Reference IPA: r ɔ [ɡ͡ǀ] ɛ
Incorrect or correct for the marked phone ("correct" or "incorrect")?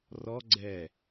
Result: correct